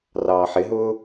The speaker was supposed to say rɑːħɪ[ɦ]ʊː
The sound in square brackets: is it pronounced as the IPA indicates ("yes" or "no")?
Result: yes